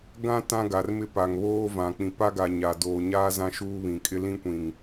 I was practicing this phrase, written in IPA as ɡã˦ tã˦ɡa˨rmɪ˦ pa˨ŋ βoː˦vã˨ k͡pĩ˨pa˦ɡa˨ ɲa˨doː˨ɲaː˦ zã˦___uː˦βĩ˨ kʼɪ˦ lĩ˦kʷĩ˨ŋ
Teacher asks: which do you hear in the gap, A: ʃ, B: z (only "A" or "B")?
A